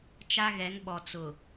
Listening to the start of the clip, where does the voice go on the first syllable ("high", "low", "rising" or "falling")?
high